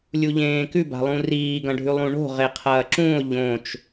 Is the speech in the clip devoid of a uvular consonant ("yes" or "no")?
no